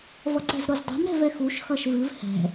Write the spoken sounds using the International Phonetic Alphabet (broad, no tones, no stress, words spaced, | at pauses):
vʌǀɛ̤zɾozdˤo̤m ɾɛ̤vɛxuʃ xʌʃvɨv hɛ̤